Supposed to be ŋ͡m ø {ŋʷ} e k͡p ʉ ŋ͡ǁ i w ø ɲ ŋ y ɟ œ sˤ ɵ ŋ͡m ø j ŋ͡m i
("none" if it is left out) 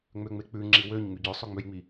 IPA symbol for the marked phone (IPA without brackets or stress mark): ŋ͡m